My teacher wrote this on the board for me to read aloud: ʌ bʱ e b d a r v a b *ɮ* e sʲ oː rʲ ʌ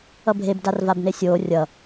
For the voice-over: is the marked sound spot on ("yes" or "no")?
no